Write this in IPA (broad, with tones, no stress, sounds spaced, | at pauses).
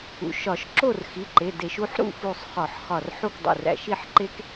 ṵ˩˧˩ ʃ ɒ˧˩˧ ʃ ǁ o˥˨ r x i˩˧˩ ǃ e˩˧˩ d e˧˩˧ ʃ u˩˧˩ ħ ɾ ṵ˥˨ f u˧˩ sˤ χ ɒ˧˩˧ ħ χ ɒ˧˩ r ħ u˥˨ k dˤ ṵ˧˩ r æ̰˧˩ ʃ i˥˨ ħ ǃ e˦˥ k